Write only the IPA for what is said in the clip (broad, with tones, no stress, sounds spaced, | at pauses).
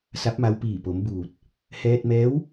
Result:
s a˧˥ p̚ m a˧ w p iː˧˩ p o˩˧ m b uː˧˩ t̚ | h ɛː˧ t̚ m ɛː˧˥ w